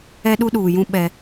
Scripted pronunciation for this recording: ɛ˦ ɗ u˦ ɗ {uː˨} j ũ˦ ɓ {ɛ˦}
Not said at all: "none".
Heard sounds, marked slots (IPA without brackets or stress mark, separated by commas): uː˨, ɛ˦